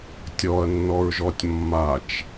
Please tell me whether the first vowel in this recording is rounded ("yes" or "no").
yes